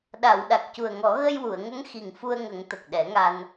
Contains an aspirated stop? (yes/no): no